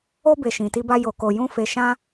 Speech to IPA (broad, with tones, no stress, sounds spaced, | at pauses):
o˧ b e˨ ʃ ĩ˨ t i˧ b a˧ j o˨ k o˨ j ũ˧ f e˨ ʃ ã˧